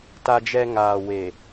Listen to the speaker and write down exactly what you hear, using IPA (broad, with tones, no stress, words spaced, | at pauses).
ta˦d͡ʒɛ˦ ŋaː˨ we˨